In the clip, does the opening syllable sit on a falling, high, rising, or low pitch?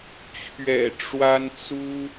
low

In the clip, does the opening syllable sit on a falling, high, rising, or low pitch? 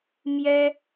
high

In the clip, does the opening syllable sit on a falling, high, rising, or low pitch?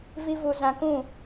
high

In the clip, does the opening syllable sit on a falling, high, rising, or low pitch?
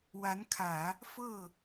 rising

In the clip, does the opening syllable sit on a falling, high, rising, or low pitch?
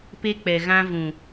high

